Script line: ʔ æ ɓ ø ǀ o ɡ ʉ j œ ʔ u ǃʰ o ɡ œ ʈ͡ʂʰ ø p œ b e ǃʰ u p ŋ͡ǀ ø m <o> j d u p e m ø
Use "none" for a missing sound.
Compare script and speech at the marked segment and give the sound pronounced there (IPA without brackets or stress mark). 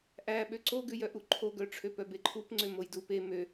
o